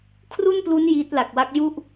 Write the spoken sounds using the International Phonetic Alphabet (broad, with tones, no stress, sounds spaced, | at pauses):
kʰ r u˥˩ n p l u˦˥ n j iː˦˥ t̚ l a˨˩ k̚ w a˦˥ k̚ j u˥˩ ʔ